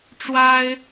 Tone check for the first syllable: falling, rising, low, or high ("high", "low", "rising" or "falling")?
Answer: high